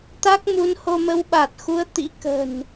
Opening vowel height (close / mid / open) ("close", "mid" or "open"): open